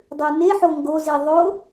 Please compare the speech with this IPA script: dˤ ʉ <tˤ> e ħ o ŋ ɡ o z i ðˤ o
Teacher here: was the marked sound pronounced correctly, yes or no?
no